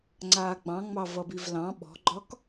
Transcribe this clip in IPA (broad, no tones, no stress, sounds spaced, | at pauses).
ŋ͡ǀ aː ɡ͡b ɑ̃ ŋ͡m ɑ v ʌ b i v l ɑ̃ ɓ ɔ̤ ɡ͡ǃ ɒ k